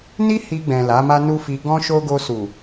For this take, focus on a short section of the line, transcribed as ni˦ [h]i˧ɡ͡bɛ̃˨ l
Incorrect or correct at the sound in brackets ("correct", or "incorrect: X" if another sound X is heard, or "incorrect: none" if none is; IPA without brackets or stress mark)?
correct